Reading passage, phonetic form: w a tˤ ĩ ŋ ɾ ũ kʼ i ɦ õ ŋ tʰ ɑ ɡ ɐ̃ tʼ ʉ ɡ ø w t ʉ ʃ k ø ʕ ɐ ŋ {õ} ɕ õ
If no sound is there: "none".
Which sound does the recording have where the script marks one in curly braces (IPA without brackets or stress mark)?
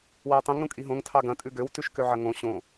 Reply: õ